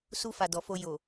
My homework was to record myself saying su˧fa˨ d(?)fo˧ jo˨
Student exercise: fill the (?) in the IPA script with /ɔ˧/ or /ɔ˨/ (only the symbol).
ɔ˨